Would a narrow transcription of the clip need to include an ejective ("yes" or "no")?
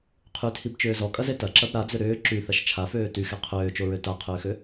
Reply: yes